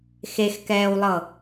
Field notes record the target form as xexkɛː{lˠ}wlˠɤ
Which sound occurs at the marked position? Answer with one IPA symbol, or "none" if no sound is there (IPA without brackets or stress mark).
none